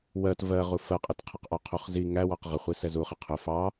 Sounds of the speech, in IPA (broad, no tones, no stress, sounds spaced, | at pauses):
w ɜ t v ɜ ʁ u f ɜ qʼ ɪ t qʰ ə q ʔ ɒ qʰ u χ z i ŋ æ w ɑ q ʁ ə χʷ i s ɛ z u χ ɪ qʰ ʊ f ɑ